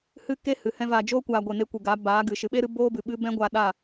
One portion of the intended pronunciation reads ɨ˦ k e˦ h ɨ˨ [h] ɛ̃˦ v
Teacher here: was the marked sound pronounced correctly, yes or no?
yes